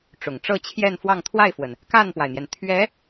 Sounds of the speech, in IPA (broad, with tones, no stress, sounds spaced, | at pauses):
ʈ͡ʂ ʊ˨˩ ŋ ʈ͡ʂ ɤ˥˧ t͡ɕʰ j ɛ˥˧ n f w ɑ˥˧ ŋ t̪ʰ w a˥˩ ɪ̯ f w ə˩ n | k a˥˩ n p w a˩ ɪ̯ n̪ j ɛ˩ n t̪ʰ ɥ ɛ˧˥